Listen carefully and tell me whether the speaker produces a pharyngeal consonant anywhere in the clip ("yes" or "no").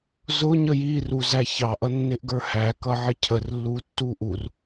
yes